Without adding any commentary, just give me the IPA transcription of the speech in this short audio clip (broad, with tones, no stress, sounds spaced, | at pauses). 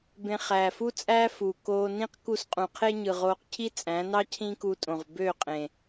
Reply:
b ẽ˧ χ æː˨ f u˦ t͡sʼ æː˦ f u˨ k oː˧ n ĩ˦ q k u˦ s qʼ ũ˨ qʰ e˦ ɲ ɯ˨ ʁ oː˧ q cʰ i˦ t͡sʼ æ̃˨˦ n ɑ˦ cʰ ĩ˦ k u˧ tʼ õ˨ ʁ b ø˦˨ qʼ ẽ˨